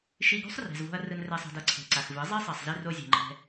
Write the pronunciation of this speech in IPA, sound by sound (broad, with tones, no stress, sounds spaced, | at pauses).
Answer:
ʃ i˧ ɡ o̤˦ sˤ r ɛ̤˨ z v o̤˧ ɐ̯ r ɯ˧ n r ɛ˧ sˤ a̤˧ d ʌ˦ ǀʰ e̤˨ ǀ a˨ x v ɯ˨˦ zˤ i˦ sˤ ɛ˨ sˤ z i˧ r o˧ zʲ e̤˨ ŋ͡ǃ ɛ̤˧